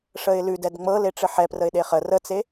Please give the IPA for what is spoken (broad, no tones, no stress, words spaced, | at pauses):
ʂəɪ̯lʉd ɛdŋ͡mɤ leʈ͡ʂɘħɛprəɪ̯ ɗeχə rət͡se